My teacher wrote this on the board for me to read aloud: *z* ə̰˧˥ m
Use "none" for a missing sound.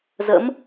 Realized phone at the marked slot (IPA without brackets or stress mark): z